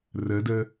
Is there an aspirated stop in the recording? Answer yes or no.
no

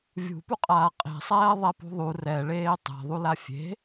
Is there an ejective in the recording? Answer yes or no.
yes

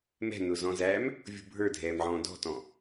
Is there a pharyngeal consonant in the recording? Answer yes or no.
yes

